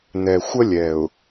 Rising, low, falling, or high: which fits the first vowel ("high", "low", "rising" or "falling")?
low